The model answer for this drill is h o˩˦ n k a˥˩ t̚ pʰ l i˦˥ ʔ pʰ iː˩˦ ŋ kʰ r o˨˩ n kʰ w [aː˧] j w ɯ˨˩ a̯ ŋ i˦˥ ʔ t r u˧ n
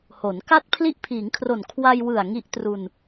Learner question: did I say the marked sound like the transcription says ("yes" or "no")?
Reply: no